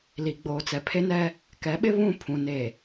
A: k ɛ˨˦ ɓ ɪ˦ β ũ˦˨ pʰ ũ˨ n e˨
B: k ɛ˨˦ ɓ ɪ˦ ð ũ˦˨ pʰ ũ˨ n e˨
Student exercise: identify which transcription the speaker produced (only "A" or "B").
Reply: A